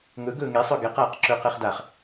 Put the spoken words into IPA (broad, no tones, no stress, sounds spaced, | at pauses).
ŋ ɵ ɡ ɵː ŋ e sˤ ɵ ɡ ɛ q aː q ǁ ɵː q ɛ χ d a χ